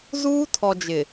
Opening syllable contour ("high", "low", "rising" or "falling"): high